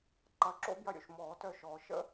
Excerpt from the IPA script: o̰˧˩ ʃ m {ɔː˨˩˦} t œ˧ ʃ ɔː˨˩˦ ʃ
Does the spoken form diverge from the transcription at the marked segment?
no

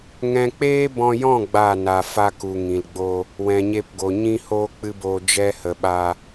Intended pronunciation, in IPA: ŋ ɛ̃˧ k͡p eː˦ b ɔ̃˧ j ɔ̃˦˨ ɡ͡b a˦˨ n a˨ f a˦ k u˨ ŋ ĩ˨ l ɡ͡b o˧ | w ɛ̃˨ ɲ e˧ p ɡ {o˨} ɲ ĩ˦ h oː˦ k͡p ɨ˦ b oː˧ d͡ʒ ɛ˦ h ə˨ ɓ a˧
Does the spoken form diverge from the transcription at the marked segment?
no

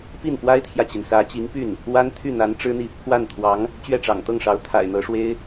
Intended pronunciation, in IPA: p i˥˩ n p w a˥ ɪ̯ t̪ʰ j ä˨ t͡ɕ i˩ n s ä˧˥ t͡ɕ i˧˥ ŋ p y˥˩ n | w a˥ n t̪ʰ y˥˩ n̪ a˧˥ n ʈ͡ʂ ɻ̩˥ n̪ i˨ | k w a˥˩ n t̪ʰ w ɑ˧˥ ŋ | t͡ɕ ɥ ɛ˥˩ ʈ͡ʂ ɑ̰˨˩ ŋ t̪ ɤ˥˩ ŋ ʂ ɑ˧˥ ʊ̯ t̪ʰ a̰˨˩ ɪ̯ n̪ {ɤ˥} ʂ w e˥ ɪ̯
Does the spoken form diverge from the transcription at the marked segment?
yes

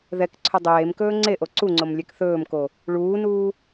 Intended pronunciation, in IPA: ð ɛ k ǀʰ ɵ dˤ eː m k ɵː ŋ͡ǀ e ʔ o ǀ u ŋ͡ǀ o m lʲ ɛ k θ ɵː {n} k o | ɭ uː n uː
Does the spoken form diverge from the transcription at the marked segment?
yes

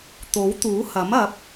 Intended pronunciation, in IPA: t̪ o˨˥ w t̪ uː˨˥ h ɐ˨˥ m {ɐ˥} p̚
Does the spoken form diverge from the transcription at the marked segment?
yes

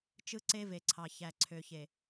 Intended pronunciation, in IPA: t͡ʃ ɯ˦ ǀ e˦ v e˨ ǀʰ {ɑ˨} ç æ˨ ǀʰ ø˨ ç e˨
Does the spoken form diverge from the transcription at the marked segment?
no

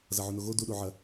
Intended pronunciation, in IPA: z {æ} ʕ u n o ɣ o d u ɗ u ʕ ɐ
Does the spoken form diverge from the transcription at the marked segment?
yes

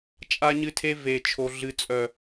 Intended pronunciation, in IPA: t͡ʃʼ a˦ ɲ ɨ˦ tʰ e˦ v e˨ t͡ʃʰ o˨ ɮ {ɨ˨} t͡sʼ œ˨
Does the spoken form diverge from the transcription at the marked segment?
no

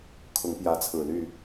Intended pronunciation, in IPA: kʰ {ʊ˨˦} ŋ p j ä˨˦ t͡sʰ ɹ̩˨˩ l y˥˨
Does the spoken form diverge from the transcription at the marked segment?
no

